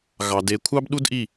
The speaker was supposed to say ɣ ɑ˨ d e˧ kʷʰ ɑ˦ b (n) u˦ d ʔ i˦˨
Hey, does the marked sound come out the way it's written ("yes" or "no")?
no